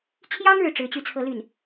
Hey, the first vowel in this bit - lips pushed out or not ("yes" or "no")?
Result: no